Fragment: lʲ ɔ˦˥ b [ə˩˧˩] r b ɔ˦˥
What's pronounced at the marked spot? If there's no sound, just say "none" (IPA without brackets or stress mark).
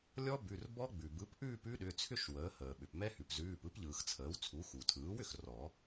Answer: ʉ˩˧˩